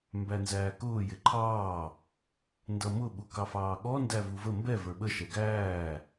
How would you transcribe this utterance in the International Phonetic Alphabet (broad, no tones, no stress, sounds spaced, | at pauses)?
m b æ n z æː k ʊː j ɪ ǃʰ ɑː | n d ʌ m ʊ ɓ u k ɑ f ɑː ɠ ɔ n d æ v u v ə m b ɛ v ə˞ ɓ ə ʃ ɛ ɡ æː